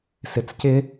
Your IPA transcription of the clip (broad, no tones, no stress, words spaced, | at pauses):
sɪt͡scɪ